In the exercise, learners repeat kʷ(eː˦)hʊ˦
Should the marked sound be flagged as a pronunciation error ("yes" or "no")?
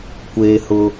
no